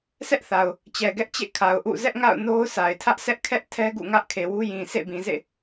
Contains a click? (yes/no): no